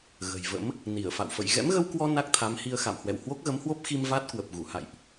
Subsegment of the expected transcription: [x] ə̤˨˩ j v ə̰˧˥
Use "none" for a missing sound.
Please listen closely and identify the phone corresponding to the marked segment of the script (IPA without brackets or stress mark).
ɣ